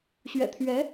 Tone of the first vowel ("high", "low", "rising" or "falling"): low